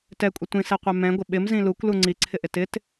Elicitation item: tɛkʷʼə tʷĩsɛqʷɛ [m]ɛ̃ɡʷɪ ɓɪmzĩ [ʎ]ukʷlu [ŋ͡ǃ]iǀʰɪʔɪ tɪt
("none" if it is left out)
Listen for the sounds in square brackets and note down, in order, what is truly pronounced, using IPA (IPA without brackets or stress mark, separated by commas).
m, l, ŋ͡ǀ